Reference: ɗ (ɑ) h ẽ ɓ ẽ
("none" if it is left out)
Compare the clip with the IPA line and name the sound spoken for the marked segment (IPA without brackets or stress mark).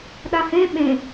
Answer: a